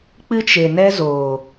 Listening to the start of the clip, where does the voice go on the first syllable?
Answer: high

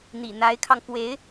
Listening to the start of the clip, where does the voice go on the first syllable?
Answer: low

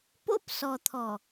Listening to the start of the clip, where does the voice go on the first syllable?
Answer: high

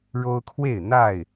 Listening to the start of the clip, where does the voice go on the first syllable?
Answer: high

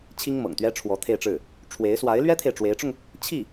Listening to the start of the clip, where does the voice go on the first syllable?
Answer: high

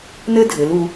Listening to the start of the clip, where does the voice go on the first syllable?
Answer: high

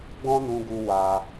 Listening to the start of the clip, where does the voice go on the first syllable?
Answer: high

